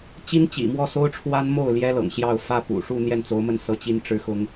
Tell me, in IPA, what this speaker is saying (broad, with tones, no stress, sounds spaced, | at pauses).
t͡ɕ i˥ n t͡ɕ ḭ˨˩ m w ɔ˥˩ s o˥ ʊ̯ ʈ͡ʂʰ w a˥ n m o˥˩ ʊ̯ l j ɛ˥ l ɤ̰˨˩ ŋ ɕ j ɑ˥˧ ʊ̯ f ä˥˩ p ṵ˨˩ ʂ u˥˧ n̪ j ɛ˥˩ n t͡s o˧˥ ʊ̯ m ə˥˩ n s ɤ˥ t͡ɕ i˥ n ʈ͡ʂ ɻ̩˥ x ʊ˥ ŋ